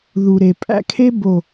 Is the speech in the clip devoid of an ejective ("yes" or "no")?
no